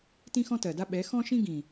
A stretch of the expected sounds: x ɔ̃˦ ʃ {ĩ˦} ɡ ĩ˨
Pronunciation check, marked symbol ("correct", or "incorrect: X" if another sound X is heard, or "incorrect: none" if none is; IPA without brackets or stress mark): correct